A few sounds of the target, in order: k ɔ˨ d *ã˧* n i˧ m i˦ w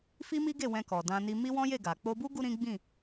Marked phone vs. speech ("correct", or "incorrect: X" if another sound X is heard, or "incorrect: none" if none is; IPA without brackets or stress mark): correct